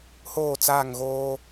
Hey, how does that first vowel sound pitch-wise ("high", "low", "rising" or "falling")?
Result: falling